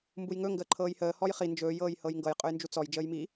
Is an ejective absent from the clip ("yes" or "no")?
no